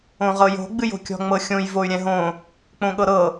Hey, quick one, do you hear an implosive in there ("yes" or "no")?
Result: yes